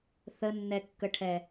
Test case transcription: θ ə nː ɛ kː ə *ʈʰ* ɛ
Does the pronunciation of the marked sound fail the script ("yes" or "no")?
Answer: no